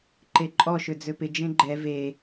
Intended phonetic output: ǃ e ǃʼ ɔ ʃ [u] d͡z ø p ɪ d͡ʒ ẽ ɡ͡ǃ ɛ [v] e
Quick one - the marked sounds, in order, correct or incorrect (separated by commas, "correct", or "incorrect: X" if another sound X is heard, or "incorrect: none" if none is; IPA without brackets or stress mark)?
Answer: incorrect: ø, correct